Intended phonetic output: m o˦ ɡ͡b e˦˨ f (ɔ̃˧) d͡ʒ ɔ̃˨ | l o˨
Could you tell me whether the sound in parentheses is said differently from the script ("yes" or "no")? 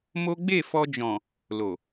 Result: yes